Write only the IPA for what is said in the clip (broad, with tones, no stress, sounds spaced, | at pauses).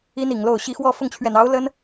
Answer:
i˥ n i˨˩ ŋ l o˥˩ ʊ̯ ɕ i˥ x w ɔ˥˧ f ʊ˥˩ ŋ t͡ɕʰ ɥ ɛ˨˩ n ɑ˧˥ ʊ̯ l ə˥ n